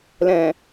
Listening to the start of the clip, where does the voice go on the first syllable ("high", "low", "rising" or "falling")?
low